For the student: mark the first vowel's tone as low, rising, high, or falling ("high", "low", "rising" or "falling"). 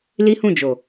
high